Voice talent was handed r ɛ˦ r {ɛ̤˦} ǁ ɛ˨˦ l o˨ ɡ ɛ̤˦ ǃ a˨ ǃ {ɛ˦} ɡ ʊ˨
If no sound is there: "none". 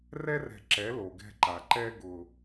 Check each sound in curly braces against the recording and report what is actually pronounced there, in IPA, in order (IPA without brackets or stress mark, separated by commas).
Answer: ɛ̤˨, ɛ˦